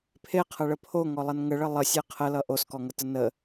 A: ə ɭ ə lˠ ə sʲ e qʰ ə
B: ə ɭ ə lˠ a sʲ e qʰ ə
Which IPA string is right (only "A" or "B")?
A